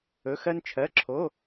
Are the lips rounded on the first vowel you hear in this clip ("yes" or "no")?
yes